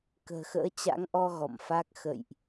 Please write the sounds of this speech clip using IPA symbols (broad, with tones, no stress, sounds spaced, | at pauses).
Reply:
k ə̤ː˨˩ x ə̰ː˧˥ t͡ɕ a̰˧˥ ŋ ʔ ɔ˧ ɣ ɔ̰˧˨ m f a˦˥ k̚ x ə̰˧˨ j ʔ